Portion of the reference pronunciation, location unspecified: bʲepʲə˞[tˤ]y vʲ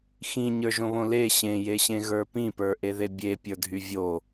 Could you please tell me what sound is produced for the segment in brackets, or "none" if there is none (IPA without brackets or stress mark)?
dʱ